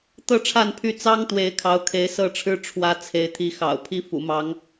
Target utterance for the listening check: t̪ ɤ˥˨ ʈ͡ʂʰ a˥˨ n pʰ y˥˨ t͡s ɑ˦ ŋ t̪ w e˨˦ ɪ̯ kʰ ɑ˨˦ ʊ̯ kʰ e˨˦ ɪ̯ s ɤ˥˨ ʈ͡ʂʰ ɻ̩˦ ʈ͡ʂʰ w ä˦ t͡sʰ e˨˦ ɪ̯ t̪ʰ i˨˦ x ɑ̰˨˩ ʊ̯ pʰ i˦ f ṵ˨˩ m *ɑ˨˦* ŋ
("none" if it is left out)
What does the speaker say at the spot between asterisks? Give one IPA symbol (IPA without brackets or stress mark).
ɑ˨˦